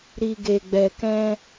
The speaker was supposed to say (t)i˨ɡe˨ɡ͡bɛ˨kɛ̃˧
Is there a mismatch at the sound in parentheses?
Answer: yes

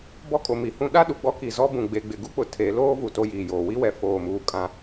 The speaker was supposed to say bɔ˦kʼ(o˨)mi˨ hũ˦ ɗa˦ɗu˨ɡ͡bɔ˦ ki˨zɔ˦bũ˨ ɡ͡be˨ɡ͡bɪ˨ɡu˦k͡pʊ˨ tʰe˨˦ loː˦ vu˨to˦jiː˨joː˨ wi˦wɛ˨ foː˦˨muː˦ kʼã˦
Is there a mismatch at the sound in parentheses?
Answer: no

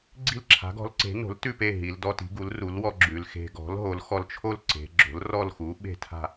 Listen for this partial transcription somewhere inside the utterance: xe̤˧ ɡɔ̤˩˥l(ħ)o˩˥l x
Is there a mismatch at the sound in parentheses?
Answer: yes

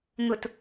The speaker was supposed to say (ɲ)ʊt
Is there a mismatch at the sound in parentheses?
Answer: yes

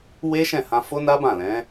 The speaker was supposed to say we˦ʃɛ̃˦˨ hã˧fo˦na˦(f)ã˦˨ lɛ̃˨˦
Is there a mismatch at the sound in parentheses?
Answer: yes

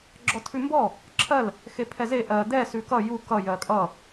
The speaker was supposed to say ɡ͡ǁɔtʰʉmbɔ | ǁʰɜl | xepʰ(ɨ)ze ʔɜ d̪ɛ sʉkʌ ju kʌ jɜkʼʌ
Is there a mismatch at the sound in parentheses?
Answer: yes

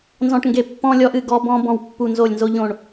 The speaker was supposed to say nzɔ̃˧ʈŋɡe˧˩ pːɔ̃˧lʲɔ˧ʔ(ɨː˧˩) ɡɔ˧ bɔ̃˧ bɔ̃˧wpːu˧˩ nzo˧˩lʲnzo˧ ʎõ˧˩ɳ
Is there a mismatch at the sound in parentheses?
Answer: yes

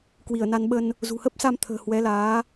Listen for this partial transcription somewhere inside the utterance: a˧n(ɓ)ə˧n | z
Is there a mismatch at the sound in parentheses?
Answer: no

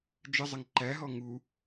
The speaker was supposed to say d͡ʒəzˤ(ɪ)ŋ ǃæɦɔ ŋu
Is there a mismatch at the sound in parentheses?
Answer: no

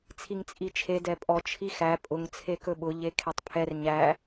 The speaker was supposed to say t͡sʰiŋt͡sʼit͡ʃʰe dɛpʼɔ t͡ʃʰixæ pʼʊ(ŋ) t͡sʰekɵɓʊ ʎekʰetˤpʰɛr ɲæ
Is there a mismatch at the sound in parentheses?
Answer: no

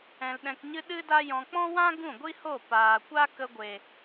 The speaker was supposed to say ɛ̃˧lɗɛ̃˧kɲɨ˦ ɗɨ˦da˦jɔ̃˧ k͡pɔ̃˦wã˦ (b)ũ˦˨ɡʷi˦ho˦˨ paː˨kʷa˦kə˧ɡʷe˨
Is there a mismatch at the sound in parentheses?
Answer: yes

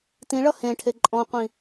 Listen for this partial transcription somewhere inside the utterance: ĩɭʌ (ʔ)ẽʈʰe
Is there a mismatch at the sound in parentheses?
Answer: yes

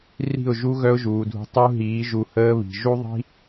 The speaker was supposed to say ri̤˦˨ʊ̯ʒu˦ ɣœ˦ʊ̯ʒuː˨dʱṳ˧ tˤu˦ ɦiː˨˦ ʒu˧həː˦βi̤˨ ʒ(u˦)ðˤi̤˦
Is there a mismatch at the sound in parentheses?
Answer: no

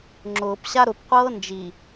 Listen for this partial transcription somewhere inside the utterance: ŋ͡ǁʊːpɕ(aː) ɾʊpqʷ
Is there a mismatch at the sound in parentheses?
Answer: yes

